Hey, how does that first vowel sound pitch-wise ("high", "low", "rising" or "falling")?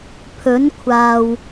rising